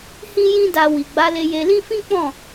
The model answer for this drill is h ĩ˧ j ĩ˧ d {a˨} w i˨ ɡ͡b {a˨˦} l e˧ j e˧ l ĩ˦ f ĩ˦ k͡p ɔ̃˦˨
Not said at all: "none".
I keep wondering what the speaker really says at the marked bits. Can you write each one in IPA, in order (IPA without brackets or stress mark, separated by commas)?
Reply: a˨, a˨˦